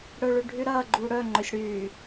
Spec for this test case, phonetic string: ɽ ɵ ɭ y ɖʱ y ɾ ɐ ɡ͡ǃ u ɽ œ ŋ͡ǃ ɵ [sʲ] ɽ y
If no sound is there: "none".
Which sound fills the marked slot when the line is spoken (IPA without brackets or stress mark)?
sʲ